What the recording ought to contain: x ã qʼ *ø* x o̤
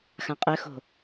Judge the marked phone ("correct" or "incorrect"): correct